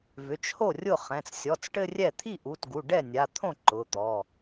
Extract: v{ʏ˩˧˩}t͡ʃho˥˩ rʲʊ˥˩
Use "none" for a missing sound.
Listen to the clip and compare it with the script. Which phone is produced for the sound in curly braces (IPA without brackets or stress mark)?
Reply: ʏ˩˧˩